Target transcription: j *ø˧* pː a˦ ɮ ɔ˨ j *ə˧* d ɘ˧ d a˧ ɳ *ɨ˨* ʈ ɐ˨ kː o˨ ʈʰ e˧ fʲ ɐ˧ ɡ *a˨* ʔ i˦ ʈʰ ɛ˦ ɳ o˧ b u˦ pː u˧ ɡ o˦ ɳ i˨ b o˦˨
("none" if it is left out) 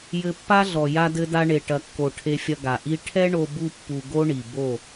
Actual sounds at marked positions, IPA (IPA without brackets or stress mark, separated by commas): ɘ˧, a˧, e˨, a˨